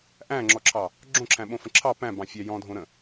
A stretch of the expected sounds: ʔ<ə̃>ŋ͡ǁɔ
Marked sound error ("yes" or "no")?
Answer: yes